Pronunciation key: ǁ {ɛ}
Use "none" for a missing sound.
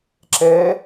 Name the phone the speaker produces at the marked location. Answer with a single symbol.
ɛ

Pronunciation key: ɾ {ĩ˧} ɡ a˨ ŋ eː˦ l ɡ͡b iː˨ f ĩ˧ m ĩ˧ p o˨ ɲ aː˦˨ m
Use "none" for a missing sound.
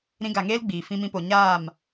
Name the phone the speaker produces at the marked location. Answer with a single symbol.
ĩ˧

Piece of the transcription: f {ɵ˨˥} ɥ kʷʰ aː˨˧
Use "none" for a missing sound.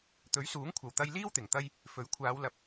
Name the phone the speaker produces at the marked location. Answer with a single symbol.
ɵ˨˥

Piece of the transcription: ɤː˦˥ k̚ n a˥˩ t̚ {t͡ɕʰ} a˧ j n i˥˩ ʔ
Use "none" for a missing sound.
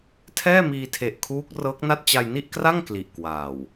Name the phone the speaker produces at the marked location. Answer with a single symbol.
t͡ɕ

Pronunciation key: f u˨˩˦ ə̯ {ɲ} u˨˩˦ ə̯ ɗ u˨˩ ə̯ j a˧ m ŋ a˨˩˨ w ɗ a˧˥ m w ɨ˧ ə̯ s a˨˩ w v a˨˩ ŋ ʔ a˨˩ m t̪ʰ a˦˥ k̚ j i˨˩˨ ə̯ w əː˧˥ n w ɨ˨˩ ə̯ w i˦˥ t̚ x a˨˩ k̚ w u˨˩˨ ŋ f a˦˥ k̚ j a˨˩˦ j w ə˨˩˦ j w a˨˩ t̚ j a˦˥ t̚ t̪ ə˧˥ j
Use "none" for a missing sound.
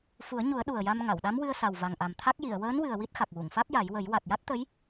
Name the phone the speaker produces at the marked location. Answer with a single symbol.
ɲ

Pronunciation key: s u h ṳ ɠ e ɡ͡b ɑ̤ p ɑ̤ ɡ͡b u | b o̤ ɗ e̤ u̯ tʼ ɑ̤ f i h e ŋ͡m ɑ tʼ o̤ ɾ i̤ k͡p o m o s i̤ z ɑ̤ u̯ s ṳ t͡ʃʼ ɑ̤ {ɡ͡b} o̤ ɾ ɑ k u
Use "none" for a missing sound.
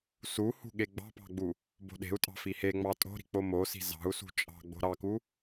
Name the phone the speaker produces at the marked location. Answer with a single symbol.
ɡ͡b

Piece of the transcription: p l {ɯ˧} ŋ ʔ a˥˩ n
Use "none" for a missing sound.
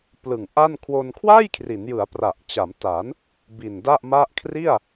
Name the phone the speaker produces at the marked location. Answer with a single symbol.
ɯ˨˩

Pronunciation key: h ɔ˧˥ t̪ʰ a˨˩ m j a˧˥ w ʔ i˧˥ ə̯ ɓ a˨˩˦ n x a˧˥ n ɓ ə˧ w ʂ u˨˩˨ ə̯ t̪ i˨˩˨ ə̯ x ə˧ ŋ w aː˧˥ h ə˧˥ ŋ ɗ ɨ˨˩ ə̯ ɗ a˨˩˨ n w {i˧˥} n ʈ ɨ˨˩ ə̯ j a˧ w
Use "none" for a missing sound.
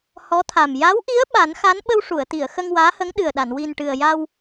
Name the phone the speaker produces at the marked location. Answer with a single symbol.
i˨˩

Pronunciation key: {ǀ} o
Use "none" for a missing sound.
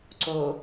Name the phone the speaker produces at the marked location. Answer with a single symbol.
ǀ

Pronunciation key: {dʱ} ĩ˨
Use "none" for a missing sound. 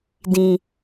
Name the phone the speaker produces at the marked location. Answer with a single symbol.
d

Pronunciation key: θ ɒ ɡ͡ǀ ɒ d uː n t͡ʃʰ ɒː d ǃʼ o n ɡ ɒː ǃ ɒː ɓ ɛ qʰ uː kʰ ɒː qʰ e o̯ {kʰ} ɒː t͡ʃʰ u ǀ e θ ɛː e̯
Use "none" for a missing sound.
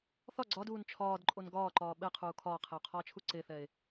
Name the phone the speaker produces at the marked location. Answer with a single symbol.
qʰ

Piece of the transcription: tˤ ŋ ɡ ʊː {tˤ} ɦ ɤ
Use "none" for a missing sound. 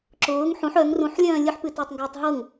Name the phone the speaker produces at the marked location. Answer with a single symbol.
tˤ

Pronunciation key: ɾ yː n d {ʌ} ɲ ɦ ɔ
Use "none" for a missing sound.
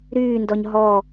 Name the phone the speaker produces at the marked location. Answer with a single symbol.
ɔ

